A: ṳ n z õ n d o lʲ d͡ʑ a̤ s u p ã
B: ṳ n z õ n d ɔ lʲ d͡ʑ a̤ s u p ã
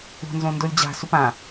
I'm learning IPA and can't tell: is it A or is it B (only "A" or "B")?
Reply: A